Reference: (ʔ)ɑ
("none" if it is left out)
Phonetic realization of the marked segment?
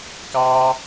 k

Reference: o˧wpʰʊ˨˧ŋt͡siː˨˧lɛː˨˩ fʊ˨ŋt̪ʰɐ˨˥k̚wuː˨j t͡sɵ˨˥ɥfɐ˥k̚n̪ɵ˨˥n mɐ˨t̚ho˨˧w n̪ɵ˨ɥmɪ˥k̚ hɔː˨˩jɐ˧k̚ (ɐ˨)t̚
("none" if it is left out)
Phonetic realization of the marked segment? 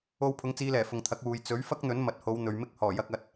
ɐ˨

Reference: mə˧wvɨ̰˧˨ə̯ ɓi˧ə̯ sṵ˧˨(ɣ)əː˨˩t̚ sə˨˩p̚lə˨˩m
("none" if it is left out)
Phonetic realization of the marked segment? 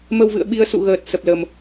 ɣ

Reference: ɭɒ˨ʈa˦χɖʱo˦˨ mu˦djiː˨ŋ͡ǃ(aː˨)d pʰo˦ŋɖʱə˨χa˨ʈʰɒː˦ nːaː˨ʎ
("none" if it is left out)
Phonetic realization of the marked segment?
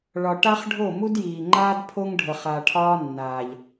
aː˦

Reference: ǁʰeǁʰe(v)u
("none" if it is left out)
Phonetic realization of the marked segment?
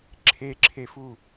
f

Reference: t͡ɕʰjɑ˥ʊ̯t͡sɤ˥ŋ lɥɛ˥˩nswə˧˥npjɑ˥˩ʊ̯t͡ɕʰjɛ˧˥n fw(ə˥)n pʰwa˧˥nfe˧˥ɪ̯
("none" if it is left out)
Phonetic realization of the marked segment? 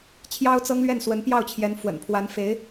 ə̰˨˩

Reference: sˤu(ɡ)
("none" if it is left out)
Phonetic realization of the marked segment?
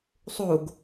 ɡ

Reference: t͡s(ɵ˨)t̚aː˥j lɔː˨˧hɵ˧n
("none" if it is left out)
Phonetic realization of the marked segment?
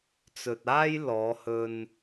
ɵ˨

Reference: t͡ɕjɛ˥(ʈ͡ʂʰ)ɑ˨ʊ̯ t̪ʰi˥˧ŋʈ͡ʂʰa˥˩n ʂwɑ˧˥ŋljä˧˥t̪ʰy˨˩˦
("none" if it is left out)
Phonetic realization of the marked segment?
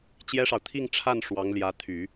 ʂ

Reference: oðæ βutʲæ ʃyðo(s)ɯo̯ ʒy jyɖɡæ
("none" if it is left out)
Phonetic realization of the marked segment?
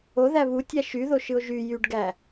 ʃ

